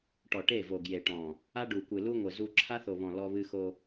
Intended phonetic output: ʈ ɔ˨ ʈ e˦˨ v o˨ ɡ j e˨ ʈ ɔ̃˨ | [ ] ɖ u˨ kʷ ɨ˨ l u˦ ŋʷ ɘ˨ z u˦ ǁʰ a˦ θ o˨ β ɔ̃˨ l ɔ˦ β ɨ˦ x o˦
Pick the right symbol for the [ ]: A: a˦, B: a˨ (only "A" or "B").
A